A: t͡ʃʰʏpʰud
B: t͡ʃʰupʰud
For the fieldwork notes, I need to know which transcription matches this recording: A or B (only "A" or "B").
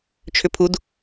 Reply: A